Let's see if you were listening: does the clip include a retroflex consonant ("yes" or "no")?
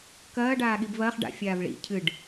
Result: yes